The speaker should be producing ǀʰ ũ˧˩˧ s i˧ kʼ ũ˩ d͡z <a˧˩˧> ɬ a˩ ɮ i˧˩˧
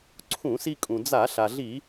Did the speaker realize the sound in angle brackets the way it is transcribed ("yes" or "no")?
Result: yes